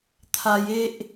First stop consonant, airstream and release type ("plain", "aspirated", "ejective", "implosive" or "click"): aspirated